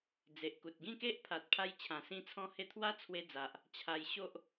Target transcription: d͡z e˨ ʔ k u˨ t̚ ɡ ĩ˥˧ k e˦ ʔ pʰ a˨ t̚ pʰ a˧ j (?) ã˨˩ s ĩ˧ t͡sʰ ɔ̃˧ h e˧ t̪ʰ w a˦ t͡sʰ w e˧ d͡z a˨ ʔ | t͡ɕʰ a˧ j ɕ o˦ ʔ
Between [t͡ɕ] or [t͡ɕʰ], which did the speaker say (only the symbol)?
t͡ɕʰ